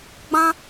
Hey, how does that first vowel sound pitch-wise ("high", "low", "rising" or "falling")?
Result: high